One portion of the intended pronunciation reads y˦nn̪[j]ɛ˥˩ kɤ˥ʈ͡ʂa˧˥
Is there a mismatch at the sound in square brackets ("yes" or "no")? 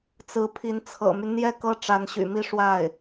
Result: no